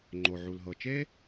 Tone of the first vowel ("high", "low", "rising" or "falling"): low